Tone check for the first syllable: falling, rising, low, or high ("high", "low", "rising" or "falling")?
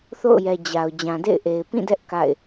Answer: falling